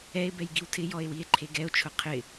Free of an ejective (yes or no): yes